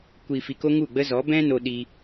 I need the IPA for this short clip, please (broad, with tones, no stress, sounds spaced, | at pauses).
kʷ i˨ f i˨ k o˧ ŋ u˦˨ ɡ͡b ə˦ z ɔ˨˦ b ɛ̃˦ n o˧ ɗ i˧